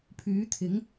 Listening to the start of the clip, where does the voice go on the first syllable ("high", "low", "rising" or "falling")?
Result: rising